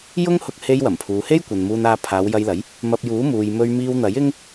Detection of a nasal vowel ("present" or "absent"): absent